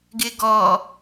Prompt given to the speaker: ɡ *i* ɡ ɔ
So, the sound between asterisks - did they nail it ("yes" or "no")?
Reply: no